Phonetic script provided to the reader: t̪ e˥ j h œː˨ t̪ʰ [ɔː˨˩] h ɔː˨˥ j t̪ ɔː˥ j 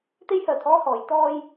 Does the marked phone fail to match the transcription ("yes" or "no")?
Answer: yes